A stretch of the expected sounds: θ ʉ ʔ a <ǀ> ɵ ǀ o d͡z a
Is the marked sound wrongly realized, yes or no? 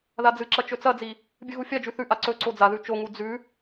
no